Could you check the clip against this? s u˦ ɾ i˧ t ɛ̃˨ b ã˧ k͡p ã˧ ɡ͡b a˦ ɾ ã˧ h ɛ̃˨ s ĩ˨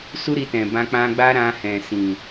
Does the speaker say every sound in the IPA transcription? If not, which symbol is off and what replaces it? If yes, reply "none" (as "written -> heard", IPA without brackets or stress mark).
none